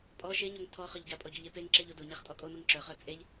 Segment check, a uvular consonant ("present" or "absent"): present